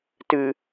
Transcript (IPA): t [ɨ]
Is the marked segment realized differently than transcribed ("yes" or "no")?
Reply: no